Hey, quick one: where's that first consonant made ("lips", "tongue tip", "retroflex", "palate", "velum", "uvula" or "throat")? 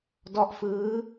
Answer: tongue tip